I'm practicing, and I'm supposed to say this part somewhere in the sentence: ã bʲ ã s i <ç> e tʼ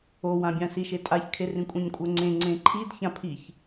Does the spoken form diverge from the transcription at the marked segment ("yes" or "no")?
yes